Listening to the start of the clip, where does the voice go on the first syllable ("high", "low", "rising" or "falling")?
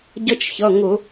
high